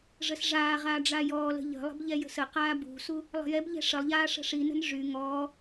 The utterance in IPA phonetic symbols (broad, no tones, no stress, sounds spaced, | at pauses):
ʐ ə s ʐ aː ʁ aː ɖ͡ʐ a j ɔː l ə̤ ʎ ə̤ lˠ ə̤ b ʎ ɛ j ə̤ s ə q aː b ṳ s u | lˠ ə̤ j ɛ b ʎ ɛ̤ ʂ ə lˠ ʎ aː ʂ ə̤ ʂ i n ə̤ n ʐ y ŋ ɔː